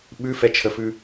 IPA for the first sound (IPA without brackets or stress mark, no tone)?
ɓ